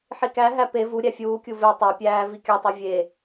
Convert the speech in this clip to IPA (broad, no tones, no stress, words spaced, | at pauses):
ħikæɦæ pe vuɾʲæ fʲuːkʲu ve tˤæpʲæː vikʲɒtˤi vʲe